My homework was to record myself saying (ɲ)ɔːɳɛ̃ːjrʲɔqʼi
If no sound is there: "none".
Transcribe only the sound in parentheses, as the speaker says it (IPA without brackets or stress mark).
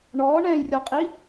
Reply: ɳ